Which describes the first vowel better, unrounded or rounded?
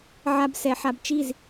unrounded